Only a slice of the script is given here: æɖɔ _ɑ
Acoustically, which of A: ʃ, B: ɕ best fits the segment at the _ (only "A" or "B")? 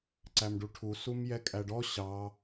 B